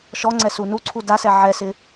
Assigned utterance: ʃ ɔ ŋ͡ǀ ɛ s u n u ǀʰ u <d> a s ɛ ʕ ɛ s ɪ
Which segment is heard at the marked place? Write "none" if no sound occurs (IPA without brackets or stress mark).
d